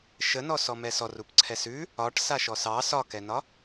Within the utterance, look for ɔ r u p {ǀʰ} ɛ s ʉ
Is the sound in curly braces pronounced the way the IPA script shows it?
yes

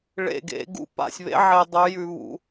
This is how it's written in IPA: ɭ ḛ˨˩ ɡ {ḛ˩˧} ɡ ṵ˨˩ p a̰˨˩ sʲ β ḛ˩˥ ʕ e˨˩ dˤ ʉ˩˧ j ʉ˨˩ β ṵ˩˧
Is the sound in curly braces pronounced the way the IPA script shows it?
yes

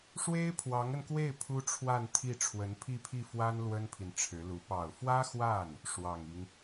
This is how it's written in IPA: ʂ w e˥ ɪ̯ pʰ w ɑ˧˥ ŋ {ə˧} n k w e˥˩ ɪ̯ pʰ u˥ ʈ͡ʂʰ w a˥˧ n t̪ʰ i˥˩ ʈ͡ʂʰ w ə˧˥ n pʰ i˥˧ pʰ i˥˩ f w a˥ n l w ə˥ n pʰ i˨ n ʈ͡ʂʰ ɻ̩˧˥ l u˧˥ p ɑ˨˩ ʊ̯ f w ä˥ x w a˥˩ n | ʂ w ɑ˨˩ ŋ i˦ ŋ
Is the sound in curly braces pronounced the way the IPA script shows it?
yes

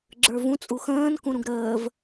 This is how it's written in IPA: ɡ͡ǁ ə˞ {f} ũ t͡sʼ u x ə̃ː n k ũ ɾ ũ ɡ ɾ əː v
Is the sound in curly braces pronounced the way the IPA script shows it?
no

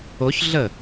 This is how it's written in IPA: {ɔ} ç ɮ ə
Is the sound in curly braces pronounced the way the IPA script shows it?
no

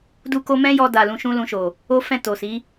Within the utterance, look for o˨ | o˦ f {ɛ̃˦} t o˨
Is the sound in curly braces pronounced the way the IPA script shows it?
no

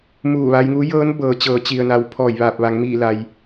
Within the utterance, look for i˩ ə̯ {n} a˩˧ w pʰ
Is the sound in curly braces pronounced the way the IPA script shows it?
yes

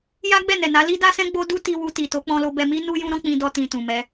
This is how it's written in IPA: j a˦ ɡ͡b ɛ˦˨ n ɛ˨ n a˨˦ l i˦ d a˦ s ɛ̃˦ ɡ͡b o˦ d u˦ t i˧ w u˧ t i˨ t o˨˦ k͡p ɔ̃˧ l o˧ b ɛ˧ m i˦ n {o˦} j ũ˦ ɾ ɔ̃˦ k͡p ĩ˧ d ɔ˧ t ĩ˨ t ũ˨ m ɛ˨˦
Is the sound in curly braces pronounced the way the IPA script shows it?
no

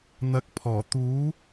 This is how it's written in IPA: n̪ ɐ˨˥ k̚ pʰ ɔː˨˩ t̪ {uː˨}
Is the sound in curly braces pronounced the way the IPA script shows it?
no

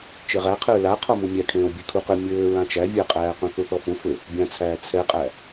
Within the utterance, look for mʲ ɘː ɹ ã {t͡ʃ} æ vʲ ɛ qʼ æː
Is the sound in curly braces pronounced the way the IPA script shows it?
yes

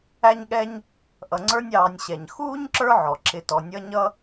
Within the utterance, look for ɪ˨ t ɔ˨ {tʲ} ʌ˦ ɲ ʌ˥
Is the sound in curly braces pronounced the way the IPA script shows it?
no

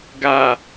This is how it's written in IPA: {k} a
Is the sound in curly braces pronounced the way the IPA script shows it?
no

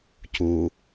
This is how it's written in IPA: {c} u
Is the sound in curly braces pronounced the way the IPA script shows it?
yes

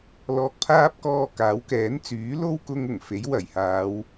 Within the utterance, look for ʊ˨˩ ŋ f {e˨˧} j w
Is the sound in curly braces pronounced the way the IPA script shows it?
no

